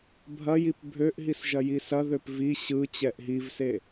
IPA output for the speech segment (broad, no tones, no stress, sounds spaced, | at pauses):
bʱ ɐ j i p bʱ ø ʔ ɦ i s ʒ ɐ j i s ɐ ð ø p v i ɕ ɯ t͡ɕ ɛ ʔ ɦ i v s e